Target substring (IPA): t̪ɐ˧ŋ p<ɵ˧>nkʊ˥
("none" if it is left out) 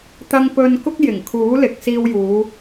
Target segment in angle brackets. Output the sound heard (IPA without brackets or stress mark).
ɵ˧